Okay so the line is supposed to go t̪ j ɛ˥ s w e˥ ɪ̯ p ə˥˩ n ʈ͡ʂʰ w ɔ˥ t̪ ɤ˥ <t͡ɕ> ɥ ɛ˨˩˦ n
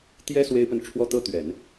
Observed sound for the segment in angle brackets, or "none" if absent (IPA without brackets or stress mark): t̪